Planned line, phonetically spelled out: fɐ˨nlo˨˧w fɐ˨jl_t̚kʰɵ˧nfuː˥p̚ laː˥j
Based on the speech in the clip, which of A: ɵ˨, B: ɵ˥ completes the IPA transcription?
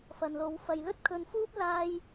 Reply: B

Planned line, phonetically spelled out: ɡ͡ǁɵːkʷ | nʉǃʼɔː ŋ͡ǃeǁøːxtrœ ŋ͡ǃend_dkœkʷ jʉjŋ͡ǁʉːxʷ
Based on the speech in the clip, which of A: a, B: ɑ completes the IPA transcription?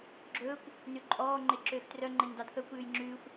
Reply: B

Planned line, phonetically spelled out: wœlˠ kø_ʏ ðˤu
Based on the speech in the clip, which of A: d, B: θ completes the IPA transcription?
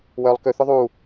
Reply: B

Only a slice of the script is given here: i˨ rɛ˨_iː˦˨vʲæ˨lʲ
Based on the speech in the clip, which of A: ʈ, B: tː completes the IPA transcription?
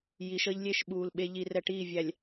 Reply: A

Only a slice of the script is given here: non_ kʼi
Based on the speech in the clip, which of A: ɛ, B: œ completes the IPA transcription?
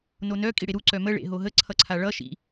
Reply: B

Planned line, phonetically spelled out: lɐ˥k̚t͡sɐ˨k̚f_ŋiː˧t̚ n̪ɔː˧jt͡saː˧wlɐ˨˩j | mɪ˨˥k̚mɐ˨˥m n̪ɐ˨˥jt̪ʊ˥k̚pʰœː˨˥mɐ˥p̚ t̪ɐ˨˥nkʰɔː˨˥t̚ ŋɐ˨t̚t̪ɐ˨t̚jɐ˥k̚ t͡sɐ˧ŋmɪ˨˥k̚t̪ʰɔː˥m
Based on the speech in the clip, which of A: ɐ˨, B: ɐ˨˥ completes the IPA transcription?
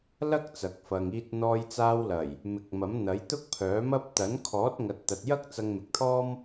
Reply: A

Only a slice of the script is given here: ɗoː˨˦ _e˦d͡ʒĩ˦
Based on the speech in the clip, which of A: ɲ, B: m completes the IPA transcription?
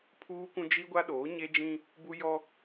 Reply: A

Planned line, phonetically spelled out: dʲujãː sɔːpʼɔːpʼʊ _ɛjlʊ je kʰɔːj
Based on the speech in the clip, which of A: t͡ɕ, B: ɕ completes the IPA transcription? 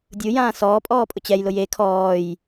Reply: A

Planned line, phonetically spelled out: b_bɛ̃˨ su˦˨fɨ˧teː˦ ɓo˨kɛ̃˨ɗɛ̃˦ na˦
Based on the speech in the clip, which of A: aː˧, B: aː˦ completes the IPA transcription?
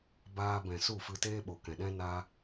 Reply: A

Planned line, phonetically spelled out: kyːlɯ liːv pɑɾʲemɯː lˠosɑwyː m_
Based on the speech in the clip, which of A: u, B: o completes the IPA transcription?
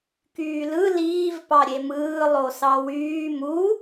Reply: A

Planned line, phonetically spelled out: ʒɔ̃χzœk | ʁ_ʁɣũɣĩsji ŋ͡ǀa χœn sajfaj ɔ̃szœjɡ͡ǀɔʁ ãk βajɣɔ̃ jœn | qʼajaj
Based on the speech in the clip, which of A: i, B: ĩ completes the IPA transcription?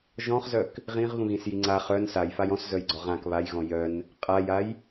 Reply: B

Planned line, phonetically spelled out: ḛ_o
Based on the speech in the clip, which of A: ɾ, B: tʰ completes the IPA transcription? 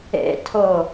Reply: B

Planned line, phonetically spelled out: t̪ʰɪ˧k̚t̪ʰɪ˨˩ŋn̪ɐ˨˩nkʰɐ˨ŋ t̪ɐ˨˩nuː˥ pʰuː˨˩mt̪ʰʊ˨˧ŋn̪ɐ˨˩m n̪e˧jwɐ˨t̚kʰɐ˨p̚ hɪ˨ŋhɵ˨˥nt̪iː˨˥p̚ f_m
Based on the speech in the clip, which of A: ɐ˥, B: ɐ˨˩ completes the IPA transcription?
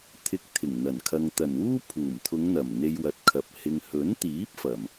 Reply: B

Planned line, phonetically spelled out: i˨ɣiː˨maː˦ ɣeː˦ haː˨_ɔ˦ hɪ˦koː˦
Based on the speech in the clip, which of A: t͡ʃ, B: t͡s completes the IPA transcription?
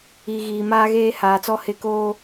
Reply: B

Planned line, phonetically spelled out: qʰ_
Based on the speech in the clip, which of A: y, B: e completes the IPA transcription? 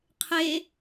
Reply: B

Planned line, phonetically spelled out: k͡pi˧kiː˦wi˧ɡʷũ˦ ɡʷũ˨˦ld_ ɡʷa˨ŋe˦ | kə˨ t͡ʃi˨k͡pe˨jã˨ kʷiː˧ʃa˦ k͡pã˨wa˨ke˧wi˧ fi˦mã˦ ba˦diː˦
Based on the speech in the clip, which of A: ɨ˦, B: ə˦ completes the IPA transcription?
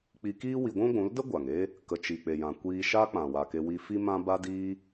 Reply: B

